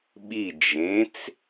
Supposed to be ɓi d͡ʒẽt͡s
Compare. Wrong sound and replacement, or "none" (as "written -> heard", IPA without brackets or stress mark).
none